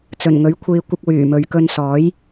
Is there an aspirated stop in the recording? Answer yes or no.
yes